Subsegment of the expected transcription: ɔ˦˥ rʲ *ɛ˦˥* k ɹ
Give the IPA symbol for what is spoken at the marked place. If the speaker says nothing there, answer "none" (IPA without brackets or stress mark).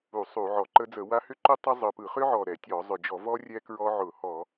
ɛ˦˥